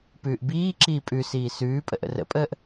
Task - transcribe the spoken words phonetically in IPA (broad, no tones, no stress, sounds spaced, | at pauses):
p ʉː ʔ b iː ǁ iː pʼ ʉ s iː s ʉː pʼ ə̰ ʔ ə̰ r ə̰ pʼ əː ʔ